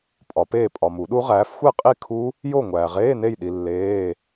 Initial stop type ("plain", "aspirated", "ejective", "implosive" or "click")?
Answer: ejective